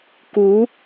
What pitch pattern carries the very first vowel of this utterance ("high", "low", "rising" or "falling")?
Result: rising